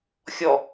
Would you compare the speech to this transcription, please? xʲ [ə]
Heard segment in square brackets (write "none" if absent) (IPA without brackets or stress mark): ɔ